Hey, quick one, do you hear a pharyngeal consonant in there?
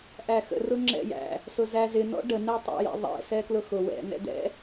no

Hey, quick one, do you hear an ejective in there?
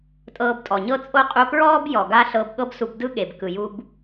yes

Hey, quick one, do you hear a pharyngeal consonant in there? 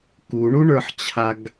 yes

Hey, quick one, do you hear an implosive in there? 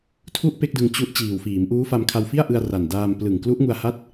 no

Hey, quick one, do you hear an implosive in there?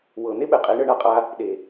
yes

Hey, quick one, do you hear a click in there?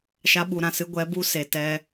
no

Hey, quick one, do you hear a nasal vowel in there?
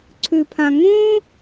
yes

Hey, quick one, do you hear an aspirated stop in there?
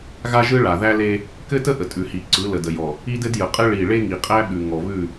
no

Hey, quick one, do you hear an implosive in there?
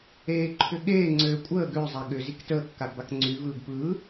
yes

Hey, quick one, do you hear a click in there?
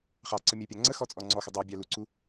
yes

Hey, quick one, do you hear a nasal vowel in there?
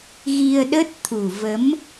no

